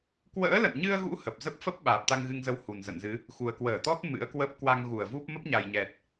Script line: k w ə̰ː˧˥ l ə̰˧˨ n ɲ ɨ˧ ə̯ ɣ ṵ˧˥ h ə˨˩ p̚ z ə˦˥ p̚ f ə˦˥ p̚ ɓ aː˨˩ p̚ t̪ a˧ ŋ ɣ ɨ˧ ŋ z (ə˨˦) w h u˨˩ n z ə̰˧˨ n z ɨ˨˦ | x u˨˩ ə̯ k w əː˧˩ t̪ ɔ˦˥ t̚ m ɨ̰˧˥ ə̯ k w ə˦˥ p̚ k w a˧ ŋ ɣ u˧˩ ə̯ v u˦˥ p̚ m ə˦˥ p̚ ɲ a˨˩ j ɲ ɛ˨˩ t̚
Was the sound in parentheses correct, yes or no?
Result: yes